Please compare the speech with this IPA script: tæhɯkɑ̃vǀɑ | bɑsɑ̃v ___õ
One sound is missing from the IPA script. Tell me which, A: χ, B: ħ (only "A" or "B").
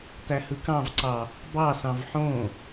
B